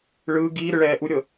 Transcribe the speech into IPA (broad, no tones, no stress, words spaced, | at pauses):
ɭɯː ɡiː ɾɯɭɛːʔuɾʲɤ